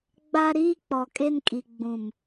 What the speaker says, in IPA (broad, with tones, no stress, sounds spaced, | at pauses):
ɡ͡b a˦ ɾ iː˦ k͡p ɔ˨ kʼ e˦ n kʼ i˨ ɡ͡b ũ˨ m